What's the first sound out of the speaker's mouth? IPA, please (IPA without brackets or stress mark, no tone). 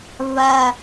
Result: β